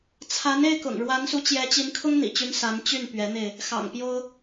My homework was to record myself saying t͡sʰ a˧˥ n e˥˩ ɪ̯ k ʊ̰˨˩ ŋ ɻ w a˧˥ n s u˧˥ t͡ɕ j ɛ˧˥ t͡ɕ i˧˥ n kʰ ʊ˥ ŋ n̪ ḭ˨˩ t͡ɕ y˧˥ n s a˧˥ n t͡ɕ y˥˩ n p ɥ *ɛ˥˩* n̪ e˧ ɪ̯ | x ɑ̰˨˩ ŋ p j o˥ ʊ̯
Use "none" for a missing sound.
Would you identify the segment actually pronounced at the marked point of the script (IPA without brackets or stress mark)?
ɛ˧˥